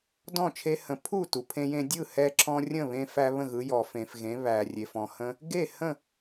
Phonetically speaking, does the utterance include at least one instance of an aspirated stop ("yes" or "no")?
yes